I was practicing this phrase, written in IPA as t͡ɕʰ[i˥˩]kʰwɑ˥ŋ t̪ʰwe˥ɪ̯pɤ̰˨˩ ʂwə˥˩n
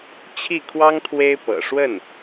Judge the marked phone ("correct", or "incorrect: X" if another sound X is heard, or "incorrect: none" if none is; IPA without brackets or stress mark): correct